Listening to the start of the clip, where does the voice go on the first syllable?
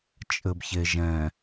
low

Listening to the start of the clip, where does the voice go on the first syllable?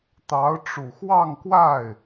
rising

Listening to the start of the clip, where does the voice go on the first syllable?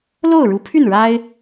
falling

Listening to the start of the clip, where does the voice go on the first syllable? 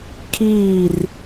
falling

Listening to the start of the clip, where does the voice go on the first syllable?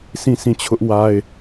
falling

